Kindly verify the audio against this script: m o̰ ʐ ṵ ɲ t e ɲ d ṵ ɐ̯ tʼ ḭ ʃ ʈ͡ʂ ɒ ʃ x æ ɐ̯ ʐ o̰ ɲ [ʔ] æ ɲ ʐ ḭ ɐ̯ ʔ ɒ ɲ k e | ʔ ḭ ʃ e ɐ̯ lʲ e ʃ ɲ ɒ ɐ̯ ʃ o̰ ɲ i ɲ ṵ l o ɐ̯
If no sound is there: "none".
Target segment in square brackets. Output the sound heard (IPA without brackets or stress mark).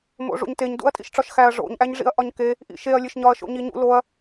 ʔ